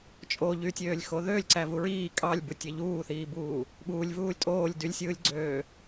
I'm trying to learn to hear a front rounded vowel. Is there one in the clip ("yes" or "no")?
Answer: yes